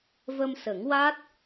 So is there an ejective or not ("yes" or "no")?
no